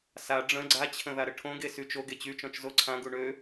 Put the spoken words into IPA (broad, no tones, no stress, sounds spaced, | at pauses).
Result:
s a ɖ͡ʐ ə̃ ɡ͡ǀ a t͡ɕʰ ə̃ ð a ɾ ə ʈʰ õ ɡ e s y t͡ʃ o ɡ e t͡ɕ y t͡ʃ ɔ̃ t͡ʃ z o ǀʰ ã ɡ u ɳ ø